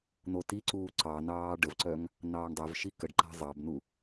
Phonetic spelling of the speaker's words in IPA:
n̪ o t i ǀ uː ǀ ɑ n ɑː ɖ ə v ǀ œ ŋ | n ɑː ɳ dˤ œ v ʃ i k ə ɖ ǃ a̤ zˤ ɑ b n u

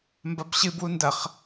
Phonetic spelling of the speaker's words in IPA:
m b ɐ b ɕ ɨ b w u n d ɐ χ

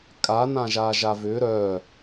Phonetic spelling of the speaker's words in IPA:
kʼ a n ã ʒ a ʒ a v ʏ ɾ œ

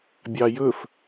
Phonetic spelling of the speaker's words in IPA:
bʲ ɑ j ɵ f

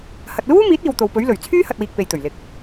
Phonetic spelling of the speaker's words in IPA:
h ɐ˨ t̚ l uː˥ m iː˨˥ t̚ iː˨ w t̪ o˨ w p ɵ˨˥ ɥ l ɵ˨˩ ɥ t͡sʰ yː˥ h ɐ˨ t̚ w iː˨ k̚ p e˨ j t̪ ɵ˨˩ ɥ l ɪ˨ k̚

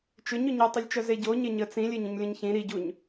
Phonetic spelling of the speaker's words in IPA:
t͡ʃ ʏ ɲ ʏ ɲ ʏ tˤ ʏ lʲ t͡ʃ œ z e ɟ o ɲ e ɲ ə t͡s ĩ lʲ e ɲ ə̃ ɲ lʲ ə̃ ɲ ç ĩ ɾ i ɟ u ɲ

